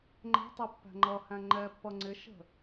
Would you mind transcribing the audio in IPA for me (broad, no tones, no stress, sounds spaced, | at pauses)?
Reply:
ŋ͡ǃ ɛ̤ tˤ i pː æ̤ ŋ͡ǃ ʌ h æ̃ ŋ͡ǃ ɛ pː ʌ ŋ͡ǀ ɪ ʃ ə̤